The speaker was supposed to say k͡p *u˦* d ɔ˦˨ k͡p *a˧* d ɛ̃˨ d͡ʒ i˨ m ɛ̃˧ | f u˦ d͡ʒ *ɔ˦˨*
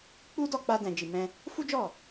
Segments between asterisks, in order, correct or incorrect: correct, correct, correct

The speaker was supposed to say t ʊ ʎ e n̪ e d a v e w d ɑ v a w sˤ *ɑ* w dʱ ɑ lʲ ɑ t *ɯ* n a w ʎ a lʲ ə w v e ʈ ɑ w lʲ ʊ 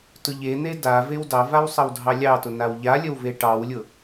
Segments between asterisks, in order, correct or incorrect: incorrect, incorrect

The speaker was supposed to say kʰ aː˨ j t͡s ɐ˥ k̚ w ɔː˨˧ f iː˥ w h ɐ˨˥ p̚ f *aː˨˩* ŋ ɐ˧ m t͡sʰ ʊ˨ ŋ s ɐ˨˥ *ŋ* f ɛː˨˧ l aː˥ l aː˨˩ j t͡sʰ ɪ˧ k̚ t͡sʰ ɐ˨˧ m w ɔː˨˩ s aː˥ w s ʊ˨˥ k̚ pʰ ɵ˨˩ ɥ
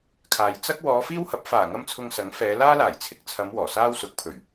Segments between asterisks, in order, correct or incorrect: correct, correct

